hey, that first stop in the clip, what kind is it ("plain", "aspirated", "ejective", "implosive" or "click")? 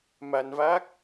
plain